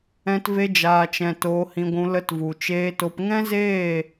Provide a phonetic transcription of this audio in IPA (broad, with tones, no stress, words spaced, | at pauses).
ɛ̃˧tve˧d͡ʒaː˨t͡ʃɛ̃˨ toː˧hĩ˧ɡʷũ˧ lə˧tvu˨t͡ʃeː˧to˧p ŋɛ̃˦zeː˦˨